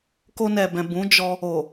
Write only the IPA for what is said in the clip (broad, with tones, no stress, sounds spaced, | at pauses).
k o˧ n ɛ˨ b ɛ̃˨ b ũ˨˦ d͡ʒ ɔ˧ | o˨